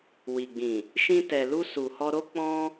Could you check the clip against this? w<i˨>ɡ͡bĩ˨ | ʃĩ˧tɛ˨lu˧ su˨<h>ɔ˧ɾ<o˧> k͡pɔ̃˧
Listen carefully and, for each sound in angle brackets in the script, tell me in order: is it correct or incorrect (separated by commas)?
correct, correct, incorrect